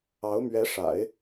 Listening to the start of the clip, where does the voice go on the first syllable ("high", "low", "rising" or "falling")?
rising